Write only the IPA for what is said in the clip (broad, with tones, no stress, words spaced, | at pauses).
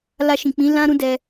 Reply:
la˧ʃĩ˨k͡pĩ˨˦ lã˦ɾũ˦dɛ˧